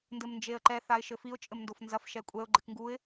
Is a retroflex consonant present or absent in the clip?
absent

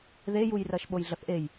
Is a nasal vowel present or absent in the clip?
absent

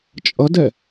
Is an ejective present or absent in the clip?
present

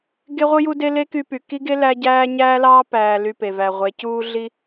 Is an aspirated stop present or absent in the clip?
absent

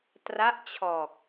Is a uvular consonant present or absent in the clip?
absent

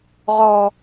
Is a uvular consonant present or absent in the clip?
present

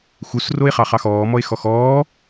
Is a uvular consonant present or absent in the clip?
present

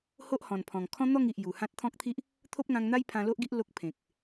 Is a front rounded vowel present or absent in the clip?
absent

